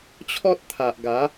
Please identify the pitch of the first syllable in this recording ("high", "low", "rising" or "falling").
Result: high